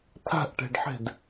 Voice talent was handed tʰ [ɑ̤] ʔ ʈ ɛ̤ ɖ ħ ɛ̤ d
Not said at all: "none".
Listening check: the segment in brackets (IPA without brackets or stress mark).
a̤